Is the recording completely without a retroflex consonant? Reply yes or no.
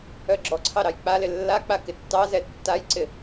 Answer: yes